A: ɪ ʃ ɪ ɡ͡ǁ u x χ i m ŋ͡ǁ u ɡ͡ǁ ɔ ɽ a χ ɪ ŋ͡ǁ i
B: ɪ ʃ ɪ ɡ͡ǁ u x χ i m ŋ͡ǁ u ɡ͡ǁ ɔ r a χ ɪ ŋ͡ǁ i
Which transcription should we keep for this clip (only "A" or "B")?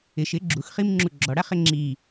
A